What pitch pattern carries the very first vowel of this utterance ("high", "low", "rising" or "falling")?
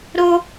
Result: high